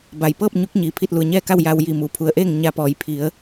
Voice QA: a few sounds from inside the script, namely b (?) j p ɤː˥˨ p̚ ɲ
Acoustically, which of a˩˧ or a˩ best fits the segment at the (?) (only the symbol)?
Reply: a˩